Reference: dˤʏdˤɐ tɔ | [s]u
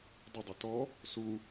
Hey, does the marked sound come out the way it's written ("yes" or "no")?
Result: yes